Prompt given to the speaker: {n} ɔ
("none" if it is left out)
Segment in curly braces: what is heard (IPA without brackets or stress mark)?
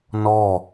n